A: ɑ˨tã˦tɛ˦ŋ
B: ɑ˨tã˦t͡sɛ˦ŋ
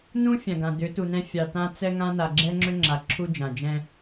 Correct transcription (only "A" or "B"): B